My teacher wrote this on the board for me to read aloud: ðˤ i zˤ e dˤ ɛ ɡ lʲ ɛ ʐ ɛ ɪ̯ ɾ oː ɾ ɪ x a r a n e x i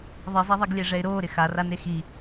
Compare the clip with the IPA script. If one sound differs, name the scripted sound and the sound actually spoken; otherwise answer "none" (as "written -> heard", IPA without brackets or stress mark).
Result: dˤ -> ðˤ